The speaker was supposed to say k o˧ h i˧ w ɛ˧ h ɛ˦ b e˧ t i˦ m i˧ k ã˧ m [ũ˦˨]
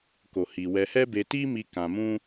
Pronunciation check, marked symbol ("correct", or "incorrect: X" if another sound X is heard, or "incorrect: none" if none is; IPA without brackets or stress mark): incorrect: ũ˦